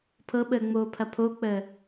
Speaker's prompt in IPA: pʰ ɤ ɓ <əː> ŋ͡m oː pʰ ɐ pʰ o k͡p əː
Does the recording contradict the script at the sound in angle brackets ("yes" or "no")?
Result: no